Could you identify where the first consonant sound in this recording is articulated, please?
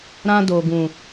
alveolar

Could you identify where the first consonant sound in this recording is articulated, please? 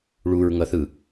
retroflex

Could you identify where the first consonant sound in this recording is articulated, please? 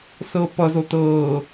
alveolar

